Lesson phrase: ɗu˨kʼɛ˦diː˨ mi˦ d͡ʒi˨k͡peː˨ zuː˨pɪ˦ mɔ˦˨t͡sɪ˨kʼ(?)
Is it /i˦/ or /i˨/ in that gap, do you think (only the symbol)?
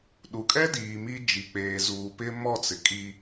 i˦